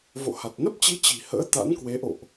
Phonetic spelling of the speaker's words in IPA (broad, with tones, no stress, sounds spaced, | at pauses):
v o̰˧˨ h a˨˩ t̚ n ə˦˥ p̚ t͡ɕ i˨˦ t͡ɕ i̤˨˩ h ə̰ː˧˥ t̪ a̰˧˥ n k w e˨˦ ʔ o̰˧˨ ʔ